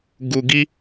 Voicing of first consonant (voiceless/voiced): voiced